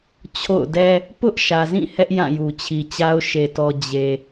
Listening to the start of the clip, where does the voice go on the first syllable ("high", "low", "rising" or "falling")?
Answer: falling